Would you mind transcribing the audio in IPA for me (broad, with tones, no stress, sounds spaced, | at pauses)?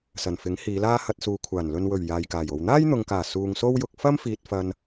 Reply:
s ɐ˨˩ n f ɪ˨˥ ŋ h iː˨˧ l aː˥ h ɐ˧ t̚ s uː˨˧ kʷʰ aː˨˩ n l ɵ˨ n w ɵ˨˩ ɥ j aː˨ j k aː˨˩ j o˨ w n̪ aː˥ j n̪ ʊ˨ ŋ k aː˨˩ s uː˨ ŋ s o˥ w j ʊ˧ k̚ f ɐ˥ m f iː˨ t̚ f ɐ˨ n